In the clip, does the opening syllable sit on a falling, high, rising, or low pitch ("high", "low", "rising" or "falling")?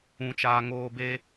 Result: low